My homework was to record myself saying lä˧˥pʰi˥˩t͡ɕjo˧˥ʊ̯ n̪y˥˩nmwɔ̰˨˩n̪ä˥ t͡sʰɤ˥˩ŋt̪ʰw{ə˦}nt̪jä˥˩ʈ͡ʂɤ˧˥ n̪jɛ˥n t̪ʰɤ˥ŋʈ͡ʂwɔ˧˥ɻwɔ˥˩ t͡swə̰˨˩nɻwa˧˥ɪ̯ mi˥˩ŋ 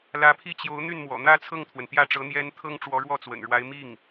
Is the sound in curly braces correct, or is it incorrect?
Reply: incorrect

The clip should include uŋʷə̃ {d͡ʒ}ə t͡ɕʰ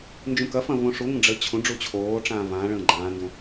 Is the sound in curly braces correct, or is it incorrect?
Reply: incorrect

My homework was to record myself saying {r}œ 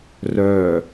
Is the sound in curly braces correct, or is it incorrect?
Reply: correct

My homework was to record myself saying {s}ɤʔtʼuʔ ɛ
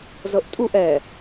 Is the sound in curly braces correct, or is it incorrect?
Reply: incorrect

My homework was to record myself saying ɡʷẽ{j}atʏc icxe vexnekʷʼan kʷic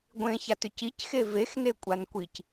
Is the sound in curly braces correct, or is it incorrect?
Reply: incorrect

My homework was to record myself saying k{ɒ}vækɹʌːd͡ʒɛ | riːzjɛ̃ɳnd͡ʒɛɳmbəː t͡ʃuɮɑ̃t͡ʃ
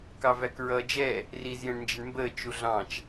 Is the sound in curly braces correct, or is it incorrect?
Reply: incorrect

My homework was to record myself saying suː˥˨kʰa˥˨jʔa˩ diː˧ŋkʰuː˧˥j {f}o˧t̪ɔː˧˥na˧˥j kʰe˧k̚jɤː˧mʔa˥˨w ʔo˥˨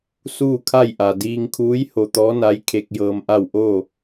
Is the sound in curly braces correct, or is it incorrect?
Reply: incorrect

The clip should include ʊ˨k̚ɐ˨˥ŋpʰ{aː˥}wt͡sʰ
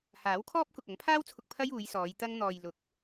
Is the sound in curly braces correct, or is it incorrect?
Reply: correct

